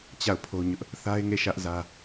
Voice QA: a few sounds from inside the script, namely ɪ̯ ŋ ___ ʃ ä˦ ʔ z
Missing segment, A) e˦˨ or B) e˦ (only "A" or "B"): A